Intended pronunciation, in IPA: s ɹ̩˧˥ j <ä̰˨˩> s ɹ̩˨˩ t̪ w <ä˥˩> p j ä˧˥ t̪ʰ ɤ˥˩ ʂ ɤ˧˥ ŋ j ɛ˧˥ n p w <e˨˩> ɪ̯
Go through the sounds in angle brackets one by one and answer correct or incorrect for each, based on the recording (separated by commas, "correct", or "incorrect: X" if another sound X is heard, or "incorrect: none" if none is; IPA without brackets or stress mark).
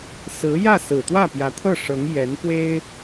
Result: incorrect: ä˥˩, correct, incorrect: e˥